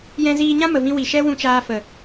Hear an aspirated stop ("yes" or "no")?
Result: no